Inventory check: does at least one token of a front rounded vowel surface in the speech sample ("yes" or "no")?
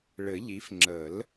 no